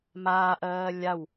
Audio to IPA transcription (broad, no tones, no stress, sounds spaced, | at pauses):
m aː ʔ ɜː lʲ a w